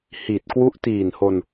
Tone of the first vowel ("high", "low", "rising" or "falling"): low